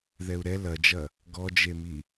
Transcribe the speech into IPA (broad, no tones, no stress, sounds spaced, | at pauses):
ð ɛ u̯ ɾ ɛ l ɐ d͡ʒ ɐ | ɡ ɔ d͡ʒ e m i